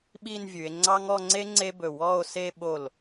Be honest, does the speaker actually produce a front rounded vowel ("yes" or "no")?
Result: no